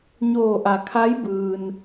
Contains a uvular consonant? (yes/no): no